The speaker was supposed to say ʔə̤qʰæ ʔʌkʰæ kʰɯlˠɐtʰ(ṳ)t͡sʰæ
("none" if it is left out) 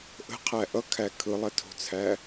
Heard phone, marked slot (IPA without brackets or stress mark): o̤